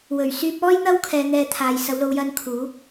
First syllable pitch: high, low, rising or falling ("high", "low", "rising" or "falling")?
low